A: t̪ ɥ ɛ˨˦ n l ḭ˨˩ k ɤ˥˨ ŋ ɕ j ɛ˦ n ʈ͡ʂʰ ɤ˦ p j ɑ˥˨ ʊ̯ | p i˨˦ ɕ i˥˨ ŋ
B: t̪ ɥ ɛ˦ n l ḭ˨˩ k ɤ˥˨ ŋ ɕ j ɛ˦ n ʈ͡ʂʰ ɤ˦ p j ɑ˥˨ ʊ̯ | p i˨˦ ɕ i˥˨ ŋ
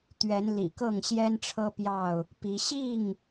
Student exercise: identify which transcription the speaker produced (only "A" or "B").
A